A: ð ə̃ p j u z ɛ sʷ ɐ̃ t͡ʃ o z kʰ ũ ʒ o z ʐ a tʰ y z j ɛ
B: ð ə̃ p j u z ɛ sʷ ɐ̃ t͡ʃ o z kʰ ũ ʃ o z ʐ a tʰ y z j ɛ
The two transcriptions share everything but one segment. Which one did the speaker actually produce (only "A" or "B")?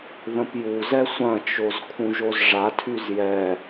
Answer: A